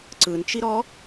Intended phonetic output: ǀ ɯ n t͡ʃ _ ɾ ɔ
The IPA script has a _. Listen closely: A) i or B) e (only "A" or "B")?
A